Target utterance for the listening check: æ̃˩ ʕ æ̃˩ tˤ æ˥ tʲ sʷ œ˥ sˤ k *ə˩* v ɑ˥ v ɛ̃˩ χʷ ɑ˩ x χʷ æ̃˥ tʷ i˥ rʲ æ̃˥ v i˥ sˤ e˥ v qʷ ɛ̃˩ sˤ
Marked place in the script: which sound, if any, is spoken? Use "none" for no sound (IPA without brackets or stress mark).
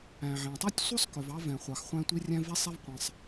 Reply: œ˩